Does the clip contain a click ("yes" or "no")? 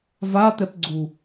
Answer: yes